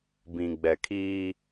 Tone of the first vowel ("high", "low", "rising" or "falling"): low